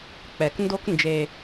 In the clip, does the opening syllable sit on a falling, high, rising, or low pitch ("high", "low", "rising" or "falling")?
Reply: low